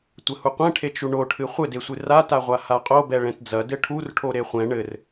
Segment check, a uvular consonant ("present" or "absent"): present